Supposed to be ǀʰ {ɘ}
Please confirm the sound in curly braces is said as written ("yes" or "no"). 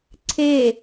no